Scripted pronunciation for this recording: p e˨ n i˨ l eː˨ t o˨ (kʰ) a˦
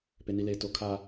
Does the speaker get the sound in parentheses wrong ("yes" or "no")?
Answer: no